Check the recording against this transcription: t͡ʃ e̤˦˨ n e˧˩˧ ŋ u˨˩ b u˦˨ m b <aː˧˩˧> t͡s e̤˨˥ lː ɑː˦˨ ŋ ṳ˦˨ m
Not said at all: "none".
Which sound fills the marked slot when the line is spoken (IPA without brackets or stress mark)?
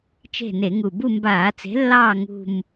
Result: aː˧˩˧